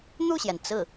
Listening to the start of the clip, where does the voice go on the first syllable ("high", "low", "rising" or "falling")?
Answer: falling